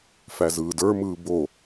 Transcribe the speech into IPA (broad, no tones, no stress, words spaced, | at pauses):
fæzɯːdə˞mɯː bo